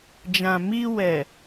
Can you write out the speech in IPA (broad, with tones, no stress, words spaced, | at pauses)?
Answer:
d͡ʒã˨mi˧ wɛ˨